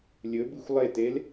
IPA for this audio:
lʲɵbɨxʷ lˠetel

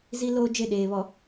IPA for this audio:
zi˦ loː˦d͡ʒe˦˨ɗeː˨βɔ˨

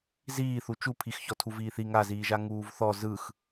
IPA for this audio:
ziːθu t͡ʃupʰixçɔ tʰuviːθi ŋaziːʒa ŋuːvθɔ zɯx

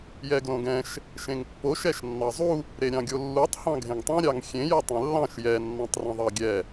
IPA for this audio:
jɛɡlõɡɛ̃ʃ | ʃẽŋpːoʃ ɛʃnːɑzˤu | ɾeɾʲɑ̃ɡʲolːutˤ hɑ̃ɡʱẽŋtˤĩ ɾʲɑŋxʲẽ jʌtˤẽlːɑ̃ʃ jɛ nːɑ̃tˤrɛ̃ðˤɑɡʲɛ

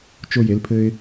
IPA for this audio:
t͡ʃo˧je˩˧lpʰɘ˧ɪ̯

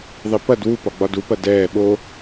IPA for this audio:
ðˤipɐd wu pɒɡ͡bɒdupɐ dɛː ɓo

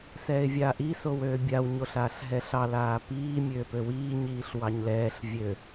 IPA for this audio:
sɛːɪ̯vʲaːʔi sowøːbʲaw ɲoɬaːɬɦɛɬɑ laːpiː mʲøːpøwiː ɲiːɬwɑɲlɛːɬ vʲø

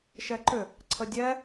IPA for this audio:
ʃɛǃʏ | ǀʰədʲɛ

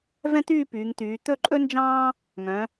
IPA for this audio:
vɛ̃˥t̪yː˥˧pyː˩˧ŋt̪yː˩˧ t̪ɵ˥˧ǃʼɵ˥nd͡ʒɑ̃ː˥ | ŋœ̃˩˧

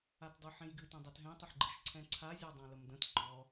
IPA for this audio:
atdˤʉħẽjɡɨ tə̃dˤɛtɦɛ̃ tˤəħɡ͡ǃɨʃǀʰɛ̃ǀʰa zʲɔdˤãləmdə̃t ɡ͡ǃɔ

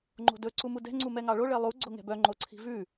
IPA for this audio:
ŋ͡ǃo̤dɵ ǀumudɛ̤ ŋ͡ǀumɛŋɑɭo ɭelˠu ɡ͡ǀoŋɛ̤bœ ŋ͡ǃoǀʰi̤vʉ

